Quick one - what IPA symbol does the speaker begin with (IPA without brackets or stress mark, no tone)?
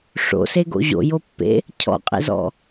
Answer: ʂ